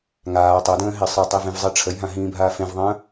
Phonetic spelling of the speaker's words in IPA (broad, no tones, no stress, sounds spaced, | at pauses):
ŋ aː tˤ œ d ə̃ː ɦ e sˤ ʌ tˤ i v ẽ v zˤ i ʈ͡ʂʰ ə j ɦ ã ɦ ĩː bʱ aː f ẽ v ðˤ ə̃ː